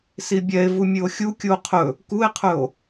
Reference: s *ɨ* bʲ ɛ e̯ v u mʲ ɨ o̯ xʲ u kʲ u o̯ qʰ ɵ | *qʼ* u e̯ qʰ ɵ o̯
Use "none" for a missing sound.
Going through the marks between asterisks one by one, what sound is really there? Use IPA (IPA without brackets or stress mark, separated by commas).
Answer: i, k